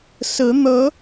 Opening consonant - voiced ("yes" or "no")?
no